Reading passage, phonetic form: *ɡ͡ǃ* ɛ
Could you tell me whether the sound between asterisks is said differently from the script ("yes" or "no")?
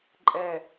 yes